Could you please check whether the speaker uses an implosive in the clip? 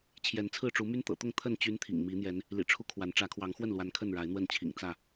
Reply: no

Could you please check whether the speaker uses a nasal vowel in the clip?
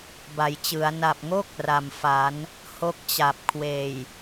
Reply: no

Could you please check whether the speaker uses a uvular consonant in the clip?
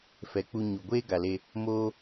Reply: no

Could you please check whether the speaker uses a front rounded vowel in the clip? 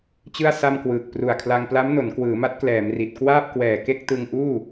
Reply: no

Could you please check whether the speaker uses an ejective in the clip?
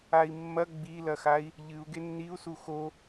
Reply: no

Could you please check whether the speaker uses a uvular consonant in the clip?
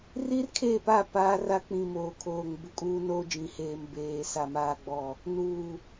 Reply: no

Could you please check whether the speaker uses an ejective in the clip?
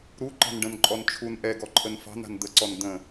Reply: yes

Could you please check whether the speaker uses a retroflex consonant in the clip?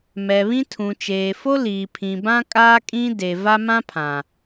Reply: no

